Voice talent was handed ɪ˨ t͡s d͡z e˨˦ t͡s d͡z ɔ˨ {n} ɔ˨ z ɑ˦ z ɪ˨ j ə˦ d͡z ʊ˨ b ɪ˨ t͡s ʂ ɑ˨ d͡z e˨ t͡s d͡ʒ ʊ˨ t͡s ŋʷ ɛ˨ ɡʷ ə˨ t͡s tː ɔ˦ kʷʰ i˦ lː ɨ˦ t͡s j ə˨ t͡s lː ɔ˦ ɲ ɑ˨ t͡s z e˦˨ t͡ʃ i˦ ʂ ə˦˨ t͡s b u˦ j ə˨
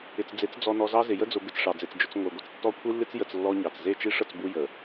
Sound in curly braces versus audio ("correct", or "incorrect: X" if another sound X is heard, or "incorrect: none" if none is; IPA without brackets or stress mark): correct